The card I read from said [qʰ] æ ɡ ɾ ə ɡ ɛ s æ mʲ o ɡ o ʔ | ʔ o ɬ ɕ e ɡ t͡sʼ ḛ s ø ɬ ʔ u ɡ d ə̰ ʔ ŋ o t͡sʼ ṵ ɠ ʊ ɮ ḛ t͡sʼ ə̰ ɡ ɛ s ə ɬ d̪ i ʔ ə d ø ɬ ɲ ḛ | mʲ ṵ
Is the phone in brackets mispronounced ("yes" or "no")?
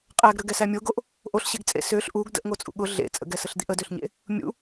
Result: yes